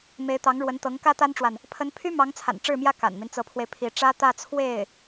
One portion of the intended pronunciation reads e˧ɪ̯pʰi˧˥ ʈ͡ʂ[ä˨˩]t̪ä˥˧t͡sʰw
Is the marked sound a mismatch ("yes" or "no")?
yes